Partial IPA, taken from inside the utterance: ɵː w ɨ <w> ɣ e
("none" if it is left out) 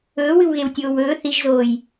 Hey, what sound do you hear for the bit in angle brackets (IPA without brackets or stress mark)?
w